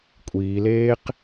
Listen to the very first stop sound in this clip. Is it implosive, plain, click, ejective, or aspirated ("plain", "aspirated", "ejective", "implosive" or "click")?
ejective